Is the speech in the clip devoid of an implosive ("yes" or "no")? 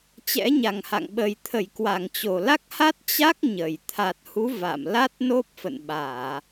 no